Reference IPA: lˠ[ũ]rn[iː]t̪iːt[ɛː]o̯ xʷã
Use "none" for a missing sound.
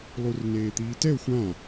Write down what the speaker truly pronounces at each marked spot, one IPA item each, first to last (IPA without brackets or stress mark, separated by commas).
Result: u, eː, ɛ